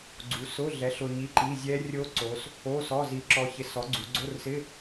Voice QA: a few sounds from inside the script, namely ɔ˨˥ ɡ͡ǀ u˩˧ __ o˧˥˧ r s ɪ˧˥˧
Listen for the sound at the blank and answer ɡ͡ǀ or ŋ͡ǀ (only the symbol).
ɡ͡ǀ